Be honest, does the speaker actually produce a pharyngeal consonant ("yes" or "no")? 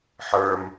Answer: yes